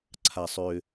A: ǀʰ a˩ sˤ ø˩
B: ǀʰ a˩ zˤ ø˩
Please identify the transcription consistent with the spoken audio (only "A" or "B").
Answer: A